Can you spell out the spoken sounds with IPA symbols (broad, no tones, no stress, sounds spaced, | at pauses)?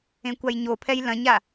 ẽ kʷ a j ɲ o pʰ ɛ j l ɐ̃ ɲ a